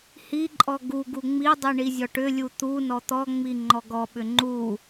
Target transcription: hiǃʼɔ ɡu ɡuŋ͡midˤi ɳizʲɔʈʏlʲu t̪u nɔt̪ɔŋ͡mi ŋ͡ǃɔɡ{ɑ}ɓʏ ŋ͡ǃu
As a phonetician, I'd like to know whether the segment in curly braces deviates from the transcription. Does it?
yes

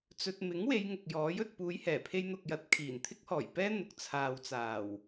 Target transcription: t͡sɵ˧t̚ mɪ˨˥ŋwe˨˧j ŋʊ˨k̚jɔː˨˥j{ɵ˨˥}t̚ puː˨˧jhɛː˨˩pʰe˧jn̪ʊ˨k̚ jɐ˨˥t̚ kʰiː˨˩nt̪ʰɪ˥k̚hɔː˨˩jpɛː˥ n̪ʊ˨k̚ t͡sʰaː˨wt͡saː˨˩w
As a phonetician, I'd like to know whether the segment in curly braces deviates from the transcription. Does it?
yes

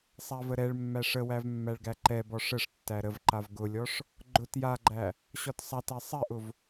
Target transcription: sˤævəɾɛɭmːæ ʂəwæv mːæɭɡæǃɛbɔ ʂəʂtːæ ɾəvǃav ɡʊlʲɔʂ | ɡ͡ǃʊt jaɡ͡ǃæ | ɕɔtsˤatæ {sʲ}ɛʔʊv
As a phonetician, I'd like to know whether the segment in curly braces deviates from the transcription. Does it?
yes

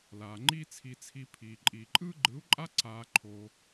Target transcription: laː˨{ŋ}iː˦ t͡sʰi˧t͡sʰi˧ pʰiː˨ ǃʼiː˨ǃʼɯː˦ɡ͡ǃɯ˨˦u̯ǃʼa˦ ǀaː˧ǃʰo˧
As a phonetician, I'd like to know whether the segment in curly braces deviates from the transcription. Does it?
yes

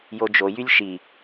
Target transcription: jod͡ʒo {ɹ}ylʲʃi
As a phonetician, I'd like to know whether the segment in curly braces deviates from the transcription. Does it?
yes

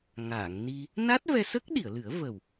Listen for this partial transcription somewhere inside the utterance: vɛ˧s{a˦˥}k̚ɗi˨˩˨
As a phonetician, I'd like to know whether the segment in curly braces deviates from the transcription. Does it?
yes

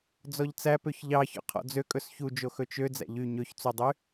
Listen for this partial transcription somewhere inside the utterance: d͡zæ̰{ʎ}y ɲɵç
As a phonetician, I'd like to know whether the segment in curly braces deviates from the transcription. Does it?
no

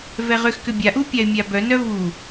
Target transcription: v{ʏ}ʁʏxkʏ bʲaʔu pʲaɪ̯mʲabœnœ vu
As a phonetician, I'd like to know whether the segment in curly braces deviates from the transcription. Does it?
yes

